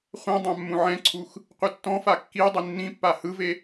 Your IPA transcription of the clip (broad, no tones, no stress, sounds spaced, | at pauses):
χʷ ɛ̃ dˤ ã mː ũ ʕ ɛ̃ ǀʰ u x | qʷ i tː ɔ̃ f a kː i dˤ i nː ĩ pː a h ɯ v e